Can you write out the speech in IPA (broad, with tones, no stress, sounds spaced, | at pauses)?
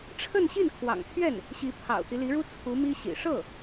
ʈ͡ʂʰ ə˥˧ n ɕ i˥˩ n kʰ w ɑ̰˨˩ ŋ t̪ʰ ɥ ɛ˥˩ n | ɕ i˧˥ pʰ ɑ̰˨˩ ʊ̯ t̪ i˦ l i˧˥ ɻ u˥ t͡sʰ u˧˥ m i˥ ɕ ḭ˨˩ ʂ ɤ˥˩